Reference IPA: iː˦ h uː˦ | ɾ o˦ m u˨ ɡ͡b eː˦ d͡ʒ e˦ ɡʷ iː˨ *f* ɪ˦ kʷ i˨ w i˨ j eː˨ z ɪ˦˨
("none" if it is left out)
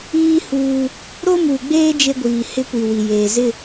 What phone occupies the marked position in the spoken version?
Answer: h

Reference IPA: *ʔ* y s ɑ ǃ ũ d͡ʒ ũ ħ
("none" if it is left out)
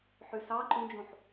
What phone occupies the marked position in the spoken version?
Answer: ħ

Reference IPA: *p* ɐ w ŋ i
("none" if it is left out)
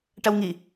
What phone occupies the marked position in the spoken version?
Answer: ʈ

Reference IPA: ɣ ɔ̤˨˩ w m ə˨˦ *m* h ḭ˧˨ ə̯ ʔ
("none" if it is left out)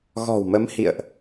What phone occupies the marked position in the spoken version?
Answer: m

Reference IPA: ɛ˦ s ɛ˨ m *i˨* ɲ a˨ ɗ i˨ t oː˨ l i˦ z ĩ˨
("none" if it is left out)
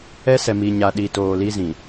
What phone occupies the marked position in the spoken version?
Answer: i˨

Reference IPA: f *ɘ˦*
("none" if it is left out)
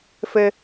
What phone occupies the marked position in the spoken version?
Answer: ɘ˦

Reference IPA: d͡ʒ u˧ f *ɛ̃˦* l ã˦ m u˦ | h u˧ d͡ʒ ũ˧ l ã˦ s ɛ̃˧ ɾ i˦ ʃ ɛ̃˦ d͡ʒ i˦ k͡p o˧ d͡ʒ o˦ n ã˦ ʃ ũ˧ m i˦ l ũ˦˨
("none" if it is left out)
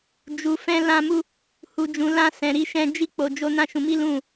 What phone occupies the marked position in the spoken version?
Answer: ɛ̃˦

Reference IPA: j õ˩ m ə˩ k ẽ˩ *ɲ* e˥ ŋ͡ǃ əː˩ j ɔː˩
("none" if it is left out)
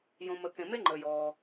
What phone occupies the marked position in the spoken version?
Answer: m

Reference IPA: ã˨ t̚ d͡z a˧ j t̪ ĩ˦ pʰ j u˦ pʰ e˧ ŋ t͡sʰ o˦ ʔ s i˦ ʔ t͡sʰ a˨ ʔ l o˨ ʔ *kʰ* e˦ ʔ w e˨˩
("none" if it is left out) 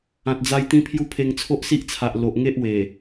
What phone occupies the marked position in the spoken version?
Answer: ŋ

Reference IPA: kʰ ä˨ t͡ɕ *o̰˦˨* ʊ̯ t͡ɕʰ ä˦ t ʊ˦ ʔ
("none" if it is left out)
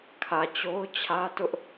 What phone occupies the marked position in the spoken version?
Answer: o˦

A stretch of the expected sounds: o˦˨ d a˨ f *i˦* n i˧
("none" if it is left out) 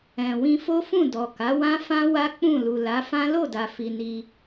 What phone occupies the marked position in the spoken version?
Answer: i˧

